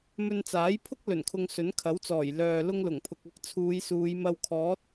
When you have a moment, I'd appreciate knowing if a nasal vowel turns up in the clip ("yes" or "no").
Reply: no